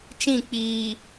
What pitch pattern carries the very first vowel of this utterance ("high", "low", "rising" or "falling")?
falling